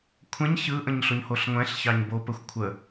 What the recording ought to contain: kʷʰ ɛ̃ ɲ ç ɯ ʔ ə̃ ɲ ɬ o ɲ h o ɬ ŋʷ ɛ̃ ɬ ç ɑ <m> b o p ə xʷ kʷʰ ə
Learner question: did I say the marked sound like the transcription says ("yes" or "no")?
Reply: no